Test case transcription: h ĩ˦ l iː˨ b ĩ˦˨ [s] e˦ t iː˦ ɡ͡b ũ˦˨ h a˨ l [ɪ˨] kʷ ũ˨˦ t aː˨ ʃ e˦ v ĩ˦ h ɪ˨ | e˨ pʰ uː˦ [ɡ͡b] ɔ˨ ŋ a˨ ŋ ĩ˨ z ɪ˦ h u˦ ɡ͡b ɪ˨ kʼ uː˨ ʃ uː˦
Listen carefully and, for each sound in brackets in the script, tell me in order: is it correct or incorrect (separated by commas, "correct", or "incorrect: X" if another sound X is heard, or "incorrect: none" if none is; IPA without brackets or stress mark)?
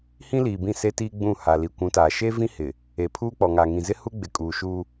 correct, incorrect: i˨, incorrect: k͡p